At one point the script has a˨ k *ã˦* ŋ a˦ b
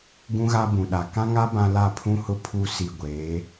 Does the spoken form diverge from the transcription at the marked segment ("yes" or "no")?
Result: no